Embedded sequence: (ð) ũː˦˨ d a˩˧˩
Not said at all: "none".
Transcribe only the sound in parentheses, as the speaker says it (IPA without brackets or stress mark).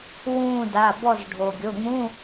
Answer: w